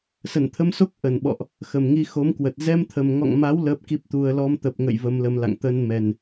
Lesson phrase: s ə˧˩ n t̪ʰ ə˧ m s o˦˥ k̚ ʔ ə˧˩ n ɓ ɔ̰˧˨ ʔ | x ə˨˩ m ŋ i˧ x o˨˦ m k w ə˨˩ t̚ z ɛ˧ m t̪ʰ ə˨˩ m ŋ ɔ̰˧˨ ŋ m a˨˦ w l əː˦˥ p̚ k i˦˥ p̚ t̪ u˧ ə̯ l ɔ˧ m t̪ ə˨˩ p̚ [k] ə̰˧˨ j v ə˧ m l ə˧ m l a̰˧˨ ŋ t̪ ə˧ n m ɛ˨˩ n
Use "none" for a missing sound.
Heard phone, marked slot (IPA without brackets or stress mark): ŋ